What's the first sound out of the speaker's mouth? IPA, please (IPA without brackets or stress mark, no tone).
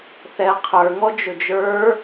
θ